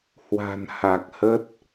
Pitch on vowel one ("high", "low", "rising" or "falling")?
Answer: low